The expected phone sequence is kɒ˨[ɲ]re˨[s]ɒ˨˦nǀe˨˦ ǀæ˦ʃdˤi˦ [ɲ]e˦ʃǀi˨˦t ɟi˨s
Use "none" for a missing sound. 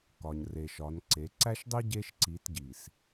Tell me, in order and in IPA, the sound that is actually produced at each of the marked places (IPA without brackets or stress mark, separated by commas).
ɲ, ʃ, ɟ